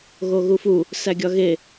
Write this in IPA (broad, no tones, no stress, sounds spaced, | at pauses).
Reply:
ɣ o ɣ u f u | s æ ɡʲ ɒ ɣ e